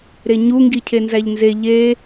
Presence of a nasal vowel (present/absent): absent